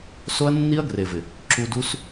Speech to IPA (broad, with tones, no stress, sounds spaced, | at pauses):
s o˦ ɐ̯ nː i˦ ɐ̯ ɡ r e˨ v ɪ˨ | ǁ u˧ d u˦ s